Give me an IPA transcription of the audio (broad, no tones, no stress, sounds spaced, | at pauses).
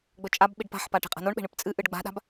ɡ͡b ɵ t͡ʃʼ a b ɓ i ɖ p a̤ ħ p a ʈ e̤ qʼ a̤ n o ɳ ɓ e̤ ɳ ɨ p t͡sʼ ɨ ʔ ɨ ɖ ɡ͡b a̤ ɗ a̤ b